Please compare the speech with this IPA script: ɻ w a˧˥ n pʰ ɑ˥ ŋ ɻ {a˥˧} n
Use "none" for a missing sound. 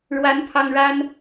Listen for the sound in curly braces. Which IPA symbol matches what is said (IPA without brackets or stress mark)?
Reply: a˥